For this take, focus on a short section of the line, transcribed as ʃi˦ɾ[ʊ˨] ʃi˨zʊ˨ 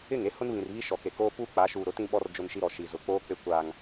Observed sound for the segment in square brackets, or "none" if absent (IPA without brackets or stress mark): ɔ˨